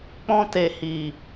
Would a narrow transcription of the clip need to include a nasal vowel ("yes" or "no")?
yes